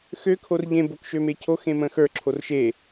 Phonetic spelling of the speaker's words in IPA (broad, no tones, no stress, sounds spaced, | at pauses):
x ø kʰ o r ʎ ẽ b o k ʃ ø m e cʰ o x ẽ m ə̃ x ə˞ ǁʰ o r ʃ e